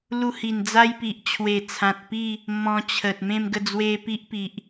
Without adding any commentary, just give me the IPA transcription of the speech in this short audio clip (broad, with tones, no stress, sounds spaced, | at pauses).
l u˧ h i˨˩ n d͡z a˦ j p i˨ ʔ t͡ɕʰ w e˨˩ t͡sʰ ã˨ t̚ p i˥˧ | m ɔ̃˧ t͡ɕʰ ə˨ t̚ m ẽ˥˧ m ɡ ə˥˧ d͡z w e˦ p i˦ ʔ p i˨ ʔ